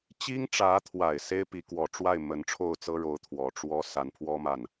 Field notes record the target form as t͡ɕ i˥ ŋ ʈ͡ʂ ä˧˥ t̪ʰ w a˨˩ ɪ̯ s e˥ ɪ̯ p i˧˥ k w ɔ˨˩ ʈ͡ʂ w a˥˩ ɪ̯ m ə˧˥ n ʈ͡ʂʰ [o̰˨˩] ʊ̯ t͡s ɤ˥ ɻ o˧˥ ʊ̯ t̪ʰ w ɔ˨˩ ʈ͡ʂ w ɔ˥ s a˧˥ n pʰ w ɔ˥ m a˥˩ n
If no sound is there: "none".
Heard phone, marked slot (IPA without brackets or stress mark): o˥˩